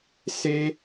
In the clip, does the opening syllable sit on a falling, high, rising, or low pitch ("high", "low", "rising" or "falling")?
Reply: high